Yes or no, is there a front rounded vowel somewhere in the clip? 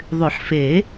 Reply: yes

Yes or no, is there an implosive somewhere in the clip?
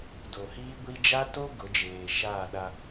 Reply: yes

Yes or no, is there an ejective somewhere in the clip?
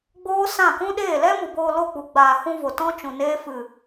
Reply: no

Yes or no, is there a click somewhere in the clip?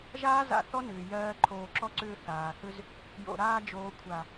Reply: yes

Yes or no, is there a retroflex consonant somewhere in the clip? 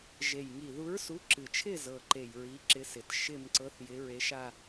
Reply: no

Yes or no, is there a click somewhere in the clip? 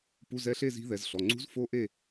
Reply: yes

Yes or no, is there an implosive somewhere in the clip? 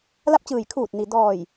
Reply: no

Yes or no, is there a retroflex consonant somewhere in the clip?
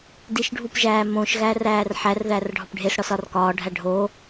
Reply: yes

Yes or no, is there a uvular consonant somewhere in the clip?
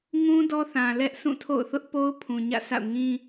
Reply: no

